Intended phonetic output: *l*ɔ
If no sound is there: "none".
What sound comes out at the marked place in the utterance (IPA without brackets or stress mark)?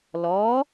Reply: l